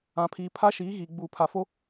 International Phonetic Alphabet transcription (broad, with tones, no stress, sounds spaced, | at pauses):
ã˨ pʰ iː˨ pʰ a˦ ʃ iː˨˦ ɣ iː˨ ɡ͡b uː˨ pʰ a˨ f o˦